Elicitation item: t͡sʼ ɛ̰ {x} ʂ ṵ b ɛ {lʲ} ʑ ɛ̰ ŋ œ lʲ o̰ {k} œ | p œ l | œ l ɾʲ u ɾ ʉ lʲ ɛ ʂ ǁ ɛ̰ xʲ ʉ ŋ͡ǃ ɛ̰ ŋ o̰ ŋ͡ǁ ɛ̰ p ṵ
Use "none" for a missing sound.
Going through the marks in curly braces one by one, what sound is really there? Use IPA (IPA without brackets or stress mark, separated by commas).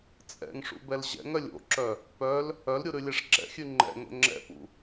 ŋ, l, ǁ